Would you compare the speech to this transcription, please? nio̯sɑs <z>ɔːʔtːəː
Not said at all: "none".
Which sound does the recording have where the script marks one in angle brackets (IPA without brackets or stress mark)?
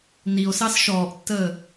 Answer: ʃ